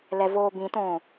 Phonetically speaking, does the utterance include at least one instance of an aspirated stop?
no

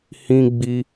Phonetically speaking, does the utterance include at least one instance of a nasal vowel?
yes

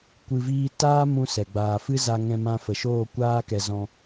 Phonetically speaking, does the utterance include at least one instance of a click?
no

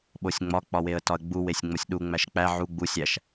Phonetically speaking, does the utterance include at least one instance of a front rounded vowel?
no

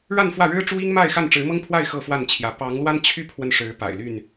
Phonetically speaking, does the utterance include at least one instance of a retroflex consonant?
yes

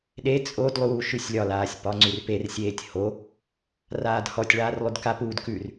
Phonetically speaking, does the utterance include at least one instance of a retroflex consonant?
yes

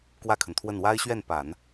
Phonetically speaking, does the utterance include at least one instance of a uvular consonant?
no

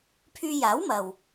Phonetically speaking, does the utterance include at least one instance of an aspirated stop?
yes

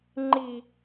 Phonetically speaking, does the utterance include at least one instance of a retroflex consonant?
no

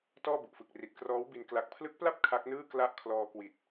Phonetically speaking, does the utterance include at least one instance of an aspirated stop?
yes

